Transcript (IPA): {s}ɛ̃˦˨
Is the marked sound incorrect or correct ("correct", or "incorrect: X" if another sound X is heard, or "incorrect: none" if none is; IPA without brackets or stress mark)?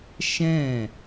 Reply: incorrect: ʃ